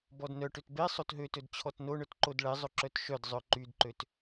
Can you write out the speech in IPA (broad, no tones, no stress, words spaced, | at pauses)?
bɔdnœʈøt be sˤotɦøtɵd t͡ɕʰɔtnoɳœt ǃodɭɛzˤɵ ǁœtʃœdzˤœ ǃydǃøt